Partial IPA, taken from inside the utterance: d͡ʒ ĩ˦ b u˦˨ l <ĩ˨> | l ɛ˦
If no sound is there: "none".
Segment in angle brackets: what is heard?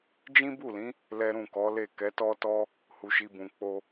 ĩ˨˦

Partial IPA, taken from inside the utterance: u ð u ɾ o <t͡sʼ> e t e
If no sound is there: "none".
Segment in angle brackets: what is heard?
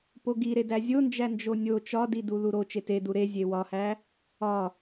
t͡ʃ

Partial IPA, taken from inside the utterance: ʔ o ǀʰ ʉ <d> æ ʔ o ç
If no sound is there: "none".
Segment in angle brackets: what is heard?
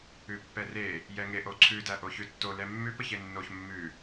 d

